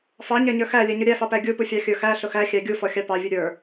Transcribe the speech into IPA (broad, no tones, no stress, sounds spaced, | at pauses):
f ɑ ɲ æ ɲ ə˞ x æ lʲ ɛ ɲ ʊ ɾʲ æ f ɑ p æ ɡʲ u p u fʲ ɑ xʲ ə˞ x æ ɬ ʊ x æ xʲ æ ɡʲ u f ɔ xʲ ɑ p ɑ vʲ u ɾʲ ə˞